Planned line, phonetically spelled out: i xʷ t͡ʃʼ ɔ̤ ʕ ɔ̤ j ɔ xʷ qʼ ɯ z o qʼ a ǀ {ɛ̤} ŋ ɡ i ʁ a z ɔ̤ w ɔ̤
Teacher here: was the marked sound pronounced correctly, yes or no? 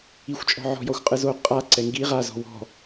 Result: no